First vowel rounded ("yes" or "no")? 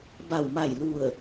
no